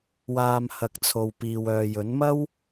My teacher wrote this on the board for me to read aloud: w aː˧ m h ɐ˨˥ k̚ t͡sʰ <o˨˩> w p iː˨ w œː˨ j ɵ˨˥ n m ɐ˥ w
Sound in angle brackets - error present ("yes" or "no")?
yes